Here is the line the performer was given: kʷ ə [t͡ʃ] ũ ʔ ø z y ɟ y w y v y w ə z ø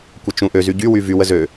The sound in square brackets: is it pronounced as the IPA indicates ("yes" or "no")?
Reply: yes